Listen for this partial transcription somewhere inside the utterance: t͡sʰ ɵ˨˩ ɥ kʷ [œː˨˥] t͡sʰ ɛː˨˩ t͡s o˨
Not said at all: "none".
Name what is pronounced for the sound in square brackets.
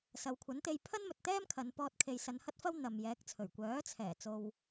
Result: œː˨˥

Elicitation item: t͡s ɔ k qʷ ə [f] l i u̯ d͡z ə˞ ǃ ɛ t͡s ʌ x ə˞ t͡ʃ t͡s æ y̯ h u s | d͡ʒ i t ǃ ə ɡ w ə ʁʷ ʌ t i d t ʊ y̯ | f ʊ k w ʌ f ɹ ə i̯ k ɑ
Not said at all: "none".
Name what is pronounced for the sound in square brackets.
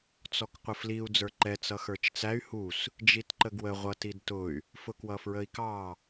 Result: f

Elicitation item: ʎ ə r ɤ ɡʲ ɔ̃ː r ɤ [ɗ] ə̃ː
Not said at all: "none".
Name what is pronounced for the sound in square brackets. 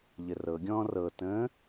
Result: t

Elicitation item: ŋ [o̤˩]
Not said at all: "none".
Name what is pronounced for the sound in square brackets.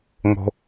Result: o̤˩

